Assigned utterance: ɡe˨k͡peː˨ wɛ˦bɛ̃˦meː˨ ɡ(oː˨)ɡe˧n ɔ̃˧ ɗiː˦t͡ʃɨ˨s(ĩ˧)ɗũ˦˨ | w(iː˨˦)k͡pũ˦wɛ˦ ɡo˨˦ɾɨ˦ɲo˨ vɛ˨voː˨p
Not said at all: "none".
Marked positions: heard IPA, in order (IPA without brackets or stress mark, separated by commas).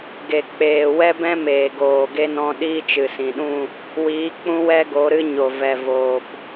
oː˨, ĩ˨, iː˨˦